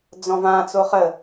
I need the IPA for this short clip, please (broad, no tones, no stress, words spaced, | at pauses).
d͡zɔ̃vã t͡soχə